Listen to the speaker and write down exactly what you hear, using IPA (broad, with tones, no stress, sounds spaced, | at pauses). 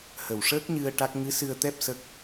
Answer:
h ə˨˩ w ʂ əː˦˥ k̚ ɲ ɨ˧ ə̯ ʈ a˦˥ k̚ ŋ ɨ˧˥ s ɨ˧ ə̯ t̪ ɛ˦˥ p̚ s ə˦˥ k̚